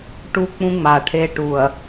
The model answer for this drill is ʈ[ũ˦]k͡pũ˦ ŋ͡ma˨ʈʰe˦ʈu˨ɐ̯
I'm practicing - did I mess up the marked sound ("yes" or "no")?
yes